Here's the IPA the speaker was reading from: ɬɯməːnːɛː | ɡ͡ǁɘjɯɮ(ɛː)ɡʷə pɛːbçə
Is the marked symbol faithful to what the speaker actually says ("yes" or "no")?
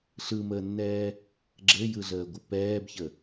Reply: no